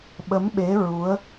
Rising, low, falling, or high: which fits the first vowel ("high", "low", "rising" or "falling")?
rising